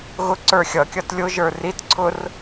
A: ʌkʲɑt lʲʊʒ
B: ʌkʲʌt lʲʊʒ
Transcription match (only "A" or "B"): B